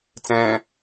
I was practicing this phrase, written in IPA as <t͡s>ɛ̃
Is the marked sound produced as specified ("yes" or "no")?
yes